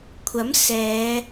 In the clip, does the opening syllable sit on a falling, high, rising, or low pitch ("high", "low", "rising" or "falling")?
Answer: rising